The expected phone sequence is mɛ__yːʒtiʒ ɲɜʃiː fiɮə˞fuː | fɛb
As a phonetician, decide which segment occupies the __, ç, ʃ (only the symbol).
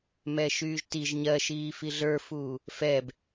ʃ